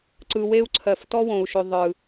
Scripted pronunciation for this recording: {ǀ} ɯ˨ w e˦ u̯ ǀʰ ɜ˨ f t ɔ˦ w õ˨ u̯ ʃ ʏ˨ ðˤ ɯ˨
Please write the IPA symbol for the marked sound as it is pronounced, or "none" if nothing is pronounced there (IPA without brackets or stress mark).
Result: ǀ